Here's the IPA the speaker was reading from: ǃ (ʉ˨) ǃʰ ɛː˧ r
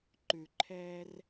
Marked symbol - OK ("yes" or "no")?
yes